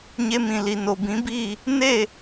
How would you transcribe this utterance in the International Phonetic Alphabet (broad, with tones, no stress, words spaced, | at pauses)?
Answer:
ɲe˧mĩ˨li˨ no˨bĩ˨˦biː˦˨ | ne˦˨